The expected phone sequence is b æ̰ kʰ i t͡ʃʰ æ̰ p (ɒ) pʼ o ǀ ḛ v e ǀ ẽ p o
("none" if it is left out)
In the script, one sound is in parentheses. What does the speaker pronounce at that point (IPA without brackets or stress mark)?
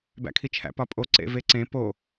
ɒ